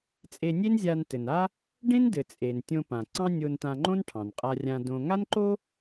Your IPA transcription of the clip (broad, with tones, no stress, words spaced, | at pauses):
t͡sʼe˧nʲe˥nzʲa˧n tɘ˩na˥ | ɖẽ˥ndɘ˩ t͡sʼe˩n tʲõ˧pã˩ ǀɑ̃˥nʲo˧ntã˧ŋ͡ǃõ˥n ʈʰɑ̃˩nqʼa˧rʲã˧dõ˧ ŋa˥nǃo˥